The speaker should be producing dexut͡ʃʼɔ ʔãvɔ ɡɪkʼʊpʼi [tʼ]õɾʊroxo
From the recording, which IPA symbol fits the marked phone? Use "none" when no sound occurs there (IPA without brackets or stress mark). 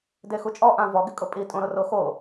tʼ